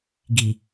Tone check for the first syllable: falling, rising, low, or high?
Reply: low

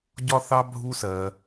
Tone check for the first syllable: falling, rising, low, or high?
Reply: high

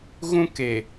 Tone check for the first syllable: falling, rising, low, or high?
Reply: high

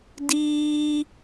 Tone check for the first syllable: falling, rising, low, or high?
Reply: high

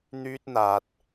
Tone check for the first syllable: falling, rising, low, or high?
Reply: high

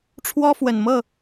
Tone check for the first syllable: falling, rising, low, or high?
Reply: high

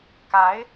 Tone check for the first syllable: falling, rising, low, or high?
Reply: rising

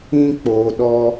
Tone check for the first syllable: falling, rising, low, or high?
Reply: high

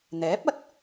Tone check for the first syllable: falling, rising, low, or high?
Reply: rising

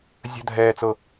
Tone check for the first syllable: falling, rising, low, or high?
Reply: high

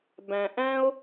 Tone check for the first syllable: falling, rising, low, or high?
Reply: low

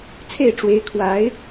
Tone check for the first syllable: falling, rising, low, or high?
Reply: falling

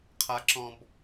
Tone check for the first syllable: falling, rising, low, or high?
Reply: high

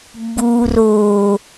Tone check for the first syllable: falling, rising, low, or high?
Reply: low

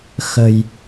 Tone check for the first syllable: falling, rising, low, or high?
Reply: low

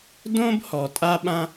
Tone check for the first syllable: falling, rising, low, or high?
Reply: high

